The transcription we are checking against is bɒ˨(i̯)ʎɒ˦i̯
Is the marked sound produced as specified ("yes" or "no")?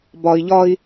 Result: yes